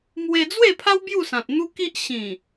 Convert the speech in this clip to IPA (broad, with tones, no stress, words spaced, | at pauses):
mwe˧d͡zwe˥˧pʰa˦w bju˥˧sã˨t̚n̪u˦ki˦ʔ ɕĩ˨˩